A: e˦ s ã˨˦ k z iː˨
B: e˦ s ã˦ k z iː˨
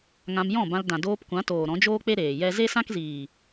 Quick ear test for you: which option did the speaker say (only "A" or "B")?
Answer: B